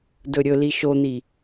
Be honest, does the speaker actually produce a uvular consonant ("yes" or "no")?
no